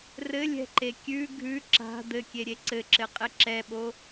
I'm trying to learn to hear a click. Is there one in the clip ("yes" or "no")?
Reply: yes